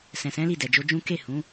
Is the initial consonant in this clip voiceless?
yes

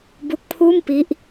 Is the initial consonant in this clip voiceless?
no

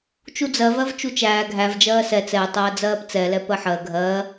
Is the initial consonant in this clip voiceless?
yes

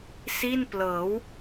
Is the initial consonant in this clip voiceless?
yes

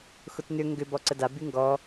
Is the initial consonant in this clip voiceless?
yes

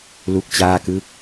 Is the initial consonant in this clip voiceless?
no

